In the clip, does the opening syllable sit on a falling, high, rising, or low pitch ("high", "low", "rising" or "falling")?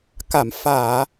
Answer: low